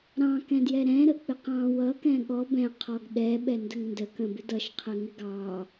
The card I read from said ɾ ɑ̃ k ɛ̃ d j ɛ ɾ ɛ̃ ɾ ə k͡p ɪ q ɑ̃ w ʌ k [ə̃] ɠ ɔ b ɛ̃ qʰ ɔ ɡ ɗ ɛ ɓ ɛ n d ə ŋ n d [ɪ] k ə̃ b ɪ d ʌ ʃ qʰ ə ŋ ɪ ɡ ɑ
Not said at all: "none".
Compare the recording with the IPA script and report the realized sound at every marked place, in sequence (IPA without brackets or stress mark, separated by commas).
ɛ̃, ə